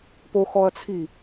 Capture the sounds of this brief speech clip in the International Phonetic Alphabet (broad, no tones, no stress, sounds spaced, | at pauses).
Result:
p o x ɔ ɐ̯ t͡sʰ i